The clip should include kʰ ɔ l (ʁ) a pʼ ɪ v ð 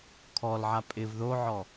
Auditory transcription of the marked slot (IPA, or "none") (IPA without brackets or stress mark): ʕ